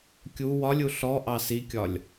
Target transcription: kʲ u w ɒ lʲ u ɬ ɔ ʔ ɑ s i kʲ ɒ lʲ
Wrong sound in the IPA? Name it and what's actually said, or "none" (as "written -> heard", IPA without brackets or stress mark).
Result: none